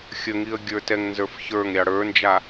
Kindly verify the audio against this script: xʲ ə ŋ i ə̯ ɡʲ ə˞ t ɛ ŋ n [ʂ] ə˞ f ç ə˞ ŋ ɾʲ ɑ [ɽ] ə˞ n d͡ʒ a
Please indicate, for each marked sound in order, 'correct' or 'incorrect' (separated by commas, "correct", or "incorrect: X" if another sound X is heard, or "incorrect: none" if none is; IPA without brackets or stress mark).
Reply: incorrect: z, correct